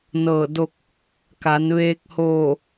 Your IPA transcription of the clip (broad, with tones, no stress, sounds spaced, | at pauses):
n ɤː˧˩ d o˧ k̚ | k a˩˧ n ʋ eː˧ k̚ h oː˧˩